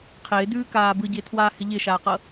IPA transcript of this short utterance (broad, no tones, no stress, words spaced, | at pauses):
qʰɪːdʉːkaː bɯɟɪːtʰwaːhɪ ʎɪʃaːqɤ